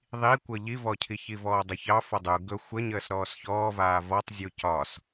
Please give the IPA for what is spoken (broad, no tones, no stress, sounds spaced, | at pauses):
ðˤ i kʷ ɤ ʎ i v ɔ cʰ i ç i v ɔː dˤ ə ç ɑ f ɔ dˤ u ɡ ɵ xʷ ə ɲ əː s ɾ ɔː s ç ɔː v aː v ɔ tˤ zʲ u c ɒ s